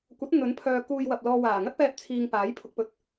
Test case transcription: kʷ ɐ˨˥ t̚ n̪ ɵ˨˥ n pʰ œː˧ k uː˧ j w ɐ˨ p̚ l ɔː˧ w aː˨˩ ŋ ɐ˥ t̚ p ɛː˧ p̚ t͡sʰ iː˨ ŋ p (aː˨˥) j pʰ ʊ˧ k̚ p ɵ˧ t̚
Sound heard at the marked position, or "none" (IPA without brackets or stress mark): aː˨˥